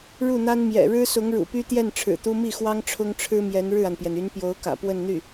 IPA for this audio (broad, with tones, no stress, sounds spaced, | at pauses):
ɻ u˥˩ n̪ a˥ n m j ɛ̰˨˩ ɻ ɻ̩˥ s ʊ˧˥ ŋ ɻ ṵ˨˩ p y˥ t̪ j ɛ˥˩ n ʈ͡ʂʰ ɻ̩˨˩ t̪ u˥ m i˥˩ x w ɑ˥ ŋ ʈ͡ʂʰ ʊ˥ ŋ ʈ͡ʂʰ ɻ̩˥ m j ɛ˧˥ n ɻ ɻ̩˥˩ a˩ n p j ɛ˩ n y˧˥ n p j o˧˥ ʊ̯ k ä̰˨˩ p w ə˥˧ n n̪ y˥˩